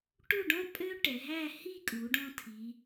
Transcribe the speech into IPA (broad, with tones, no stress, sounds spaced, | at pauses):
ʈ u˥˧ ɖ ɔ̃˥ pʼ ø˥ ʈ ɛ˩˧ ɦ æ˥˧ h i˥˧ kʼ u˩˧ ɖ ɔ̃˧ tʰ i˩˧